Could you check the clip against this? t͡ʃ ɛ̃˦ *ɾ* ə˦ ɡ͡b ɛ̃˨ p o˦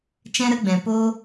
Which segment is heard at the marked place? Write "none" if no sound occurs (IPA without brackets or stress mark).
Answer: ɾ